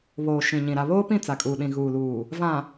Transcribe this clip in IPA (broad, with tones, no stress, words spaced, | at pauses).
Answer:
βoː˨ʃĩ˨ɲĩ˨ ɾa˨βoː˦pĩ˦˨ t͡sa˨kʼuː˨ɗĩ˨ ɣuː˨luː˨ | vã˨